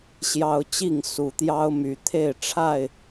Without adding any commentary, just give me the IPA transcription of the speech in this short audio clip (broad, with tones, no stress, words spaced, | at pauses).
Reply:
ɕjɑ˦ʊ̯ t͡ɕi˥˨ŋ su˨˩t̪jɑ˦ʊ̯my˨˦ t̪ʰe˥˨ɪ̯ʈ͡ʂʰa˥˨ɪ̯